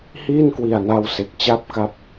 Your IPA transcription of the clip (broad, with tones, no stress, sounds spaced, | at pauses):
h iː˥˩ n k w i˨˩ a̯ n a˧ w s e˨˩ k̚ t͡ɕ a˥˩ p̚ k a˦˥ p̚